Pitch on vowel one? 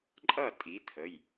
falling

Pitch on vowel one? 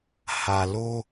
low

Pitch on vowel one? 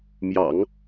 low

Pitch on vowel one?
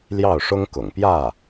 falling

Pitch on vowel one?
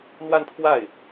falling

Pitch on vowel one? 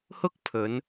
high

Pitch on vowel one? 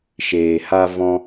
low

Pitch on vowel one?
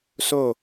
falling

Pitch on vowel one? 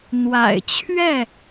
low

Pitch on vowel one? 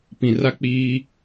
low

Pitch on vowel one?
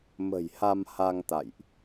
low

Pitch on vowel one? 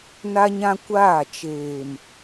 high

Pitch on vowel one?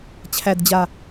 low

